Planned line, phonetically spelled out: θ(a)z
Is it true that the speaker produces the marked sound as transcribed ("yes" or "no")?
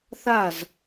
yes